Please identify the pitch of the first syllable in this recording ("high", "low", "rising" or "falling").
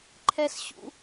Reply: high